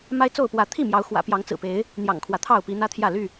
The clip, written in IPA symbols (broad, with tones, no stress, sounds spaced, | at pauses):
m a˦ ɪ̯ t͡s o˥˨ ʊ̯ p w ä˨˦ t̪ʰ i˥˨ m j ɑ˨˦ ʊ̯ x w ä̰˨˩ p j ɑ˨˦ ŋ t͡s ɹ̩˨˩ p e˨˦ ɪ̯ | n̪ j ɑ̰˨˩ ŋ kʰ w ä˦ t̪ʰ ɑ˥˨ ʊ̯ p i˨˦ n̪ ä˦ t̪ʰ j ä˥˨ l y˥˨